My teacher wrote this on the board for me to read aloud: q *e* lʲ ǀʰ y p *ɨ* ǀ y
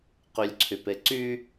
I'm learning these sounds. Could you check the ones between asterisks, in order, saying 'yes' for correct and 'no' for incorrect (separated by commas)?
no, no